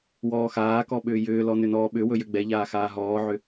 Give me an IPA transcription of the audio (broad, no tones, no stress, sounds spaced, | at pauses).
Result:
w ɔː x aː k ɔ ɓ ʏː j ʏː l ɔ n ʏ n ɔː ɓ ʏ w ɵ j ʏ ɡ͡b ɛ ʎ aː x aː ɦ ɔː ʕ ʏ